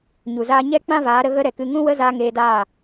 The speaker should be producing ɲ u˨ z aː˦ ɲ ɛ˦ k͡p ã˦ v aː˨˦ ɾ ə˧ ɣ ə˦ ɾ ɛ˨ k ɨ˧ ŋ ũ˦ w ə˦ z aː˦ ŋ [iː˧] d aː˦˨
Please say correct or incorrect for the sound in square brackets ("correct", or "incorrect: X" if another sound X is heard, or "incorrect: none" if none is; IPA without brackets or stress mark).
incorrect: eː˧